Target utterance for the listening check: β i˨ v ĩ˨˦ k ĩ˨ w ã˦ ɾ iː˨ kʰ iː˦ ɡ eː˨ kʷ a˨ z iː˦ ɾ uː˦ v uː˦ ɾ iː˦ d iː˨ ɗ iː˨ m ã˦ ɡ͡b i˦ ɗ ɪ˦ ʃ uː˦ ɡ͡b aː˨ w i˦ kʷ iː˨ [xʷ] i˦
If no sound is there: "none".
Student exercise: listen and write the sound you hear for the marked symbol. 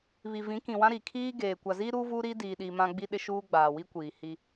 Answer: h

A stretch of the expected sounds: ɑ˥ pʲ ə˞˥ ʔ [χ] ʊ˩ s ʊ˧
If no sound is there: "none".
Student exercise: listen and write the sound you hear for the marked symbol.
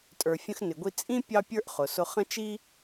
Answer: χ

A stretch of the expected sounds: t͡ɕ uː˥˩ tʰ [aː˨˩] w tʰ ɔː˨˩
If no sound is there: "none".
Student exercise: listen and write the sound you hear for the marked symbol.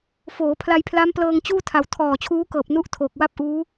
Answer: a˨˩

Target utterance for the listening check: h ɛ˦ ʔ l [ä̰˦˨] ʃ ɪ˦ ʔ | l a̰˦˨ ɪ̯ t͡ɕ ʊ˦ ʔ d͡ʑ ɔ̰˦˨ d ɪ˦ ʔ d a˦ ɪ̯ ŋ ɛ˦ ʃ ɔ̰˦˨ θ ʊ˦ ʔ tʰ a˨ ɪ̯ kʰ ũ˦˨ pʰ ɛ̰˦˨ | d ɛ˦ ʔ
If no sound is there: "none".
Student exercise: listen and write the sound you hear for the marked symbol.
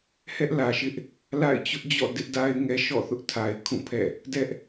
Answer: ä˨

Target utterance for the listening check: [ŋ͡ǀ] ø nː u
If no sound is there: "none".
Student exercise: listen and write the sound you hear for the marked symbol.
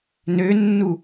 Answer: n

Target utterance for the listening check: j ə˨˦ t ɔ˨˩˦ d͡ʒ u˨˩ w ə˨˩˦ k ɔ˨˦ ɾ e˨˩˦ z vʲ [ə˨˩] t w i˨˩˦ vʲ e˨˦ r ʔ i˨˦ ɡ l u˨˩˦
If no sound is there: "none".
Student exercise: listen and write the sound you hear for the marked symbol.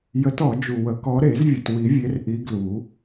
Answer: ə˨˩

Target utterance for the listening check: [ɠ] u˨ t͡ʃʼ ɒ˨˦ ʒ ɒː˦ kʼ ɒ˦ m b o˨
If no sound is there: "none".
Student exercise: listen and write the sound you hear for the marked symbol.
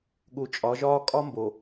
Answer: ɠ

